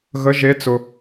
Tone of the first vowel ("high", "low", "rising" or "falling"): rising